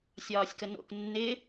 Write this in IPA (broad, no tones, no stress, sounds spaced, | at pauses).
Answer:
sʲ ɒː sʲ k ə n o̰ k nː ɪ